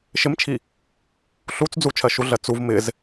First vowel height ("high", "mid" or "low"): high